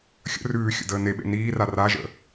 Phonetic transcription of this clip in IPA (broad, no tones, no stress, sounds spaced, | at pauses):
xʲ ə̰ r ʉː xʲ ə̰ d əː n e ɓ ḛ n iː r a r a ʒ ə̰